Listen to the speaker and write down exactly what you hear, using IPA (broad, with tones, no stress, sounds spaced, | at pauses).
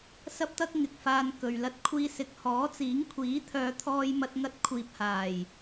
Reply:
s ɐ˥ p̚ t̪ ɐ˥ k̚ ŋ ɪ˨ k̚ f aː˧ n k ɵ˨ ɥ l ɐ˧ t̚ kʷʰ iː˧ s ɪ˨ k̚ h ɔː˨˥ t͡s iː˨˥ ŋ kʷʰ iː˨˥ t̪ʰ œː˨˧ t̪ʰ ɔː˧ j m ɐ˧ t̚ ŋ ɐ˧ t̚ kʷʰ iː˨ p̚ h aː˨˩ j